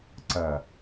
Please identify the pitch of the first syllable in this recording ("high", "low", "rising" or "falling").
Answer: low